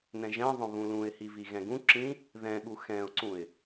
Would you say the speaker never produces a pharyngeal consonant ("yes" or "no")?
yes